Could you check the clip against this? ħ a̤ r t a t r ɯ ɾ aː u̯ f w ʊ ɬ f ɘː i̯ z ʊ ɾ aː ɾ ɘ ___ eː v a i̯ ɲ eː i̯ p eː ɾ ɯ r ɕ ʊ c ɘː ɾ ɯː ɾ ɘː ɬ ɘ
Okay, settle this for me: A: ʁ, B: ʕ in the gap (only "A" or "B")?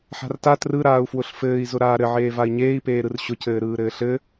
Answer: B